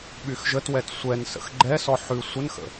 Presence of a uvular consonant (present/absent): absent